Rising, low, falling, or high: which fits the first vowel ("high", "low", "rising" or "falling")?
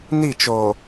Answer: falling